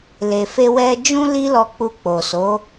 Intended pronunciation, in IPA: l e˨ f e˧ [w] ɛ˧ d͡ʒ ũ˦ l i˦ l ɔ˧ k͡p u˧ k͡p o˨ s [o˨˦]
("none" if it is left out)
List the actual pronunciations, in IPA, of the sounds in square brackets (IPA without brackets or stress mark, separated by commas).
w, o˨˦